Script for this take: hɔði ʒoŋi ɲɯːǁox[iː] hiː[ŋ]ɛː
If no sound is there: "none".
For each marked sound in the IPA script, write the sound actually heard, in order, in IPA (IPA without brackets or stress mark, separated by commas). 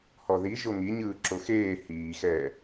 eː, x